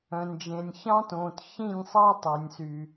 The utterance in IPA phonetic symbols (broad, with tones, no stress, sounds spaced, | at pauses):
œ̃˨ n d͡ʒ ẽ˨ nʲ ç ɑ̃˦ t õː˨ t ç ĩ˦˨ nʲ sˤ ɑ˦ tˤ o˨ nʲ s y˨